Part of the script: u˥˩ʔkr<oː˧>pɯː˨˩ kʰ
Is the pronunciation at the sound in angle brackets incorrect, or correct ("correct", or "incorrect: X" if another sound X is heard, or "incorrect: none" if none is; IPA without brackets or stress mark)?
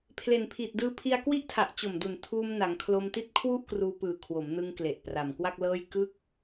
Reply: incorrect: uː˧